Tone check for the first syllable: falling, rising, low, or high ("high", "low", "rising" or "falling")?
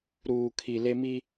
low